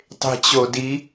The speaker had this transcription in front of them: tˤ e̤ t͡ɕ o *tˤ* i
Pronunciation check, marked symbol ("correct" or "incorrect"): incorrect